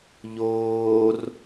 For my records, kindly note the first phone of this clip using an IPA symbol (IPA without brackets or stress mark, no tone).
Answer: ʎ